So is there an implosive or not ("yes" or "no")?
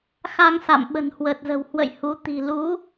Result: yes